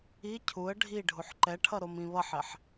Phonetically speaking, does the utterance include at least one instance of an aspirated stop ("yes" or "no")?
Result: yes